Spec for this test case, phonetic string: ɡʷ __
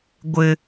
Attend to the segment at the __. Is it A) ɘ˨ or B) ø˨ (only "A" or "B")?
A